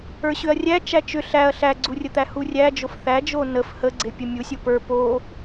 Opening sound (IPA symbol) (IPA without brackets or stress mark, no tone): ə˞